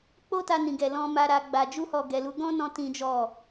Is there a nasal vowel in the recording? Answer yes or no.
yes